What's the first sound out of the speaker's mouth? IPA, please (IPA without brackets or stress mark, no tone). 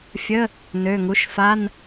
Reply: fʲ